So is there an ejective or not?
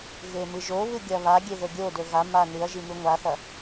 no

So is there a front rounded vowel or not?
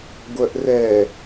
yes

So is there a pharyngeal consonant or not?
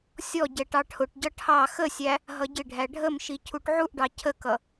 yes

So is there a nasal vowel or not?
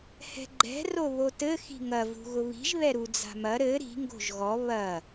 no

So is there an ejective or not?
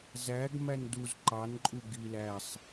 yes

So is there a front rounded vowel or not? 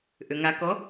yes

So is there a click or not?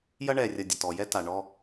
no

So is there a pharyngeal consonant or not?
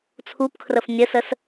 no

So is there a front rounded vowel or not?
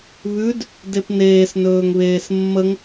no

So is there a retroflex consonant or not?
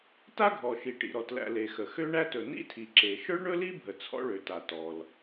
yes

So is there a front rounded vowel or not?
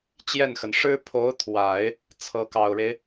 no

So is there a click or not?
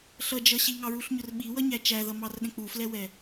no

